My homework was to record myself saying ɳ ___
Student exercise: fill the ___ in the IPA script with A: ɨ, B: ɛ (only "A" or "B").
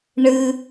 A